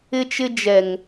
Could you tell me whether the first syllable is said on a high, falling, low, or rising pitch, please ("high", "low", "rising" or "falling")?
high